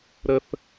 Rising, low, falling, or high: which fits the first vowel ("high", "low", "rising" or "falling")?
low